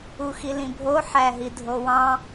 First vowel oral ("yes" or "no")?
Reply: yes